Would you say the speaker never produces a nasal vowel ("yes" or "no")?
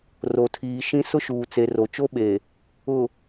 no